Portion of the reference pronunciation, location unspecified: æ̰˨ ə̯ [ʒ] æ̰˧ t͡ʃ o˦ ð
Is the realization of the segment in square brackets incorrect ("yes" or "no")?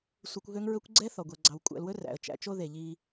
yes